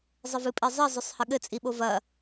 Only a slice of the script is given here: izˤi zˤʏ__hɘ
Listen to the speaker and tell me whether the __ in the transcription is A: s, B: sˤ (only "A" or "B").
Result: B